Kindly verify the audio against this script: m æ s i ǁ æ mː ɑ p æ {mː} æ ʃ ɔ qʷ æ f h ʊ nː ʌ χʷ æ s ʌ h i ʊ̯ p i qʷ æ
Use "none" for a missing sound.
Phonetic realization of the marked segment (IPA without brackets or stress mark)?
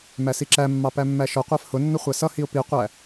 mː